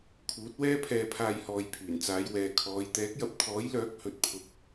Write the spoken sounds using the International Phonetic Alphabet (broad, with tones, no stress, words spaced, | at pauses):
kʰuː˨˥t̚wɛː˥pʰɛː˧pʰaː˧j hɔː˨j pʰyː˨˩nt͡saː˨˧jwɛː˨ kʰɔː˨˧j t̪ɛː˨˥k̚jɐ˧p̚ t̪ʰɔː˨˥jlœː˨˥k̚ hɵ˧t̚pʰʊ˧k̚